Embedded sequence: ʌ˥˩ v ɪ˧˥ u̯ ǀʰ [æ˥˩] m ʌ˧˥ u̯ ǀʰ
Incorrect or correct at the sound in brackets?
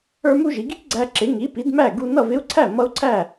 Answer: correct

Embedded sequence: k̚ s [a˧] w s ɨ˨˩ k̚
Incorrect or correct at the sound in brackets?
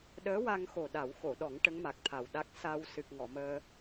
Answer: correct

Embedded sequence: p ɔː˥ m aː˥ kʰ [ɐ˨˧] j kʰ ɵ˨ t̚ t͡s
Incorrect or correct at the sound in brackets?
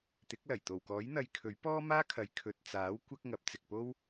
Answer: correct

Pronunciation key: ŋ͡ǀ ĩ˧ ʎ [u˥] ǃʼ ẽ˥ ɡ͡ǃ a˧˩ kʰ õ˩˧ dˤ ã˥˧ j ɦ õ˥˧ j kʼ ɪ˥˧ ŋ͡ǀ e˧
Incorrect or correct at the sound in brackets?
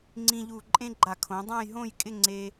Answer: incorrect: u˧˩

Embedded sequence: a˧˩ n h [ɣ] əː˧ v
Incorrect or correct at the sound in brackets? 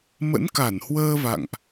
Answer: incorrect: w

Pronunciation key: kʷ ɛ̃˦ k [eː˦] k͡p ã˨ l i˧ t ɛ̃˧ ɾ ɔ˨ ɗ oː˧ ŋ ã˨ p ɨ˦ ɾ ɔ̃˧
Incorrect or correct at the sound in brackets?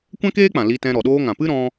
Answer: correct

